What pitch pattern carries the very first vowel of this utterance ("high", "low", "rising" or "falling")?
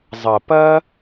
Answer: low